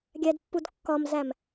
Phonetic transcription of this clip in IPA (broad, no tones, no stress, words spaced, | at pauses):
ɡʲædpːudkːɒmzæm